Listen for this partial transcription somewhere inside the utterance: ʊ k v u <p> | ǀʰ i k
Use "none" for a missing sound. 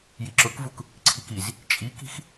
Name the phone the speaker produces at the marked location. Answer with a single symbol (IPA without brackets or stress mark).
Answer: k